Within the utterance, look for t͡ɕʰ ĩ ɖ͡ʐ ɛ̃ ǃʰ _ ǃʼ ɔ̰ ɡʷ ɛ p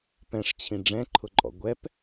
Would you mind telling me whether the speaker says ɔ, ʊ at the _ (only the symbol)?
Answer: ʊ